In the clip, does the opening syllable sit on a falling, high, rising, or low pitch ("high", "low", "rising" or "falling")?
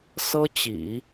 high